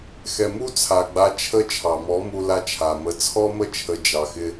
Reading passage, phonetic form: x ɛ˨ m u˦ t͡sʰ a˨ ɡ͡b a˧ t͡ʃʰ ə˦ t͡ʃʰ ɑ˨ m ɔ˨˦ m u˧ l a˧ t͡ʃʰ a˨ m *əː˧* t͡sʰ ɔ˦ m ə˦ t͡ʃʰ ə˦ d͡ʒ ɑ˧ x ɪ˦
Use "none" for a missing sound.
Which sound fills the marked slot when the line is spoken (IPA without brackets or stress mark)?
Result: ə˧